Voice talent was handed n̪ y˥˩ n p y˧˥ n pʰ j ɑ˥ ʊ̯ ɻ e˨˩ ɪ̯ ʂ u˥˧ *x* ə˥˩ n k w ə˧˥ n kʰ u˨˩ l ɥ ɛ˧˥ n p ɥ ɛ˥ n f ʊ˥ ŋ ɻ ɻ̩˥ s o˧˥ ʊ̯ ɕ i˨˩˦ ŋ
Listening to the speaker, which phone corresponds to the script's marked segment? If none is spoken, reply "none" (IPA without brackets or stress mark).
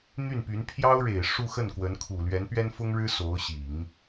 x